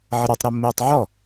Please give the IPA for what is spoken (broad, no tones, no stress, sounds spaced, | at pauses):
ʕ ə ɾ a tˤ ɾ o mː eː tˤ ʕ ɔ